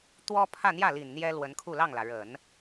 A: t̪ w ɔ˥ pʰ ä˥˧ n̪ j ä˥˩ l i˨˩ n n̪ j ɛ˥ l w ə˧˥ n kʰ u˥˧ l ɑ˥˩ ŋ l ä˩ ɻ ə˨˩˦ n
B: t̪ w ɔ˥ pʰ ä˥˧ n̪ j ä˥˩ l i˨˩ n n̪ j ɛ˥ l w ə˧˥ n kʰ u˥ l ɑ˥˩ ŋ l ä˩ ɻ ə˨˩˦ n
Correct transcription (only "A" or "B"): A